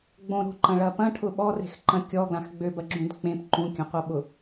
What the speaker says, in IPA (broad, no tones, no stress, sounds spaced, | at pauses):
ɡ͡b õ ɾ o̤ ǃ ɐ̃ ɭ ɐ p ɐ̃ ʈʰ ʊ ɓ ɔ r e̤ x ǃ ɐ̃ kʲ ɔ ɡ l ã x ɡ͡b ø b ɐ ɡ͡ǁ ũ d k͡p ẽ p ǃ ũ kʲ ɐ̃ qʷ ɐ ɓ ʊ